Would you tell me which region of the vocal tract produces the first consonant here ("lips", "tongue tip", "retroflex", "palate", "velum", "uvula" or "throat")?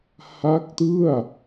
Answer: throat